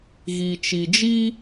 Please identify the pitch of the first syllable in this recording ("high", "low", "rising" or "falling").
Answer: low